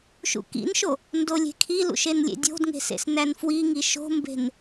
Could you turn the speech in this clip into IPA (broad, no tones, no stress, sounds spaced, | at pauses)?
ʃ ṵ k ḭ n ʃ o | n d o lʲ e̤ kʰ i l ṵ ʃ e n lʲ ḛ dʲ o̤ d ŋ e̤ s ḛ s n æ n f w i ŋ i ʃ o̤ m b e̤ n